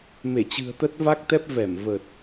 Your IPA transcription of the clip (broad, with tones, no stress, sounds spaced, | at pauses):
m e˧˩ t͡ɕ ɨ̤˨˩ ə̯ t̪ ə˦˥ t̚ v a˦˥ k̚ t̪ ɛ˦˥ p̚ v ɛ˧˩ m v ə˨˩ t̚